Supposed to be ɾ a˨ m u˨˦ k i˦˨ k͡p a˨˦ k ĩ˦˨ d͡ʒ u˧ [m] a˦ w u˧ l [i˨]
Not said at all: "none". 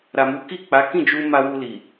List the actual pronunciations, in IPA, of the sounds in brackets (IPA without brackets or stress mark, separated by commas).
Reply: m, i˨